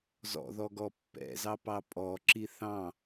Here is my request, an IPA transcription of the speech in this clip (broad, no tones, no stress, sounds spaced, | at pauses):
z ɔ̰ ð ɔ ɡ ɔ pː ɛ̰ z ɑ p ɑ pʼ ɔ ǁ i θ ɑ̃